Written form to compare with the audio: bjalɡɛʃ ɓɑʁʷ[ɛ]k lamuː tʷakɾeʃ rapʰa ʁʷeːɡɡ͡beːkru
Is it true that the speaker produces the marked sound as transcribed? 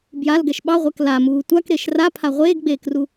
yes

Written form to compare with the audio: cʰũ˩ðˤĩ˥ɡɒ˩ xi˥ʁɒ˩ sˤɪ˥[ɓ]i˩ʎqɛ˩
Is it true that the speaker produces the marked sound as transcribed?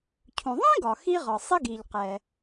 no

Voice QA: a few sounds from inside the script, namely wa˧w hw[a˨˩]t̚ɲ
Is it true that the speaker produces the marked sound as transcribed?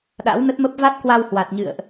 yes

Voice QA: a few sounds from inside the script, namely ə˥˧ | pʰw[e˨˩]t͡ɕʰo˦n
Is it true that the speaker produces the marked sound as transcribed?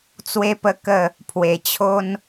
yes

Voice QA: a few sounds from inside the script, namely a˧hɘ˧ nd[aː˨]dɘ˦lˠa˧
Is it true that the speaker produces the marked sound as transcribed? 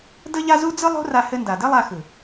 no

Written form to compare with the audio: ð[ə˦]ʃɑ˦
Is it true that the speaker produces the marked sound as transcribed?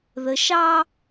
no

